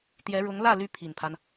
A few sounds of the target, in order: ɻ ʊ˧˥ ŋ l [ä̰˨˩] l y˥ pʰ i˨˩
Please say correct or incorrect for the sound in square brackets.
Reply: incorrect